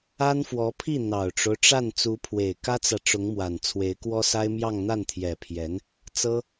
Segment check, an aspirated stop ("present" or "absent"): present